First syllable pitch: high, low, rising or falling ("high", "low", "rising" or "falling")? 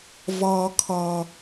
high